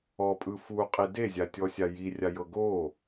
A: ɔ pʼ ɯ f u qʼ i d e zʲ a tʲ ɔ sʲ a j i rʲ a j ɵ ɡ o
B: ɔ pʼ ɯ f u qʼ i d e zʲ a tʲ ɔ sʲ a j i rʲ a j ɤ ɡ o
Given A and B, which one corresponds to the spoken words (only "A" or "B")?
B